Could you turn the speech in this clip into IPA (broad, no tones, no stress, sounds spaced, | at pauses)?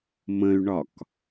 m ə̃ y̯ ɳ ɒ k